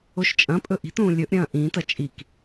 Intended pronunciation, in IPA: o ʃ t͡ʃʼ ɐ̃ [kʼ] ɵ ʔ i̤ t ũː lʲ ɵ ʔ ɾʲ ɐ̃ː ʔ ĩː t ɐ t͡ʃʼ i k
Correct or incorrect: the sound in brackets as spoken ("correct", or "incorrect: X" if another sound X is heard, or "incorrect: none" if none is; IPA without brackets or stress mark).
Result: incorrect: pʼ